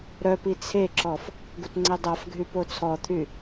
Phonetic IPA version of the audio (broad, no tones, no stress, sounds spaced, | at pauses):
ɾ œ p i t͡sʰ e ǁ ɔ f | ɡ u t ŋ͡ǀ e dˤ a f ɡʱ y p o t͡sʰ ɔ t̪ʰ y